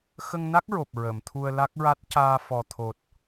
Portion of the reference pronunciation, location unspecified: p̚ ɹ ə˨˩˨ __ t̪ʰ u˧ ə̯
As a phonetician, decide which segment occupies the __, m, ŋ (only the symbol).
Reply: m